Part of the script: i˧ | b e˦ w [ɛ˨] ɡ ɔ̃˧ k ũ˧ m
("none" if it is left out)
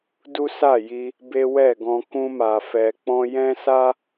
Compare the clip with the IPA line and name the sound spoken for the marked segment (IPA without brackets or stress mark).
ɛ˦˨